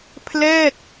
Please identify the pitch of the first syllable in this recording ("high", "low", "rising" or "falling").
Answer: falling